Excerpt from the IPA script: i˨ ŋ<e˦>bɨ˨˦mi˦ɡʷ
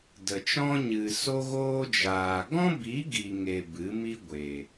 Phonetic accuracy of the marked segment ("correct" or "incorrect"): incorrect